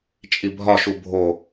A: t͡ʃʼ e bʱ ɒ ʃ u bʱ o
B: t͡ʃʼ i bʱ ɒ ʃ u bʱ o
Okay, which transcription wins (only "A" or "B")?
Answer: B